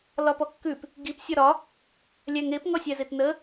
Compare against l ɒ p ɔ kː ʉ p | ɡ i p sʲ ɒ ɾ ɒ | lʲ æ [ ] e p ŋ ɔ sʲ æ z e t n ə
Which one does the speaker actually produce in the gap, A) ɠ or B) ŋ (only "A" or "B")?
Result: B